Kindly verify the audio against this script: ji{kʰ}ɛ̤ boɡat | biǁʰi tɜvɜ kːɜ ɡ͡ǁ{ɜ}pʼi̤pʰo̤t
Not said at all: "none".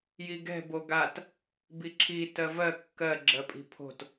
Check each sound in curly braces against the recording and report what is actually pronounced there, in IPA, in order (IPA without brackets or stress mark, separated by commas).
ɡ, ɜ